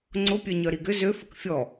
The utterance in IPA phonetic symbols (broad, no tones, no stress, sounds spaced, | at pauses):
ŋ͡ǀ ʊ pʲ œ ɲ œ ɾ i ɡ ʏ z ø f ə k fʲ ɔ